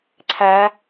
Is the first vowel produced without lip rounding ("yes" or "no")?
yes